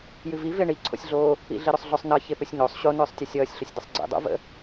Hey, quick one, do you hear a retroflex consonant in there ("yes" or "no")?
yes